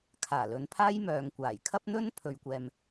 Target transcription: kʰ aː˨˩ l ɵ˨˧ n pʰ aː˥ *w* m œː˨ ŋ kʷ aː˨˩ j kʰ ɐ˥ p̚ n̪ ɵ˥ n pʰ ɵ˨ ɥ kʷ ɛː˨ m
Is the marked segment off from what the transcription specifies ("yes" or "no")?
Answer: yes